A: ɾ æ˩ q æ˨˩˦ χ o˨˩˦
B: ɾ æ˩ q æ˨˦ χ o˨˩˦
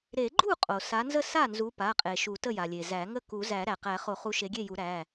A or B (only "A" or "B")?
A